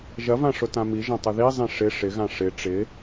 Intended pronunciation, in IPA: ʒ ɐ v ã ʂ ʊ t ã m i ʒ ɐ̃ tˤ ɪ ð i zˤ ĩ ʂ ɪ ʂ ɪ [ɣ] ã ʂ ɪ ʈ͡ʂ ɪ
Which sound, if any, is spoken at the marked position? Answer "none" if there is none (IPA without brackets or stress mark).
ɣ